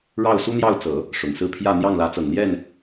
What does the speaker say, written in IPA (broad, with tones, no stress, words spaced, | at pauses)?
ɻɑ˥˩ʊ̯su˥n̪jɑ˥˩ʊ̯t͡sɤ˨˩˦ | ʂʊ˨˩ŋsɹ̩˥˧pʰjä˥˧ n̪jɑ˥˩ŋlä˧˥t͡sɤ˨˩ŋ ljɛ˥˩n